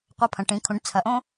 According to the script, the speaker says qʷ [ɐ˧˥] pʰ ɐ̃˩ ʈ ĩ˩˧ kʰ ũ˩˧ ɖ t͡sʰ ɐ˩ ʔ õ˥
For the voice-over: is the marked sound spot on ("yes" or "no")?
yes